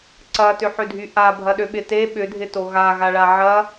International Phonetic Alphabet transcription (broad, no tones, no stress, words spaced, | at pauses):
ǀɐtʏħødʱy ʔabʱɐɗøɓɪ te ɓʏdʱɪto ɣaɣaɭa ʕɐ